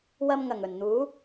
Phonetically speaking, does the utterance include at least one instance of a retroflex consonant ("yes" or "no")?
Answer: no